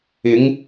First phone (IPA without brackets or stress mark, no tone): ɪ